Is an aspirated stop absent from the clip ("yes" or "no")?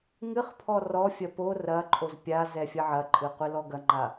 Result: no